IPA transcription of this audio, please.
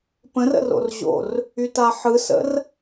p ə̃ r ə̰ r o̰ r ʑ o̰ r | y t a ħ ɯ s ə̰ r

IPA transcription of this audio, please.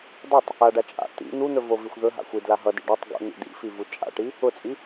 dˤ u tˤ | a ɖ a t͡ʃʼ a̰ t̪ ḭ n̪ u n̪ ɵ v o v i xʷ ð ɵ ɦ a̰ xʷ i d l a ɦ ʌ d ḭ ɖ a tˤ ɡ o̰ n̪ ḭ d ḭ f i v u t͡ʃʼ a̰ ʈ i | ʊ t͡sʼ i

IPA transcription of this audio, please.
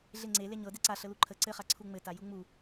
ɮ e ŋ͡ǀ e l e ɲ ɤ d e ǀ a ɬ ə l u ǃʰ ə ǀ ɘ χ a ǀʰ u ŋ͡m ɘ t a j u ŋ͡m u

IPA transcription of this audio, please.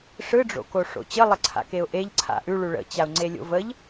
ʂ ɯ ɖ͡ʐ o̰ k o ʂ o̰ t͡ɕ ə lˠ ə ǀʰ a̰ k e ʊ̯ ʔ e ʎ ǀʰ a̰ ʔ ʉ ɭ ʉ ɭ ə̰ t͡ɕ a ʊ̯ ŋ͡ǀ e lʲ o̰ v ə ʎ

